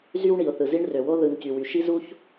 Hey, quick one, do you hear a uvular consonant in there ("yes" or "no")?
no